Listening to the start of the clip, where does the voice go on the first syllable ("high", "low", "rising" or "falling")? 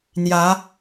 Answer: rising